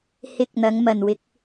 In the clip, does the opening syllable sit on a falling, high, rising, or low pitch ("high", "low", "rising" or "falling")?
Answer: rising